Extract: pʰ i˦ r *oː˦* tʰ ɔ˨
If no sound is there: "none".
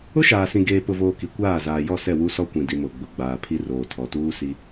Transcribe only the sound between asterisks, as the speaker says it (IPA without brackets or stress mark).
oː˨